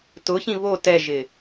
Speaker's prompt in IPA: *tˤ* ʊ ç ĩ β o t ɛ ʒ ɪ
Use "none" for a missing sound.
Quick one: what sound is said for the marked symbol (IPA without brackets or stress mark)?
t